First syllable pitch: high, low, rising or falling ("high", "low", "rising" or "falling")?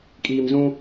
low